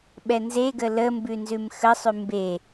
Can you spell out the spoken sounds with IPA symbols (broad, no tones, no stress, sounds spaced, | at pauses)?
ɓ ɛ n z e ɡ ə l ə m b ʉ n z ʉ m x ə sˤ ʉ m b e